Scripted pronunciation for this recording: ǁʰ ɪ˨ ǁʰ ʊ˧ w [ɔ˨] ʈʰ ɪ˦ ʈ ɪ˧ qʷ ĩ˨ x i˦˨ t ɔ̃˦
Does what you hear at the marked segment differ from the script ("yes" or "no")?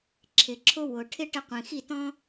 yes